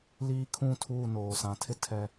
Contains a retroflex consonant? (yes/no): no